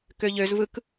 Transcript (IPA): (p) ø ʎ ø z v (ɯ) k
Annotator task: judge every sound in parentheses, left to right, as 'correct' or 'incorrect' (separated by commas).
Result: incorrect, correct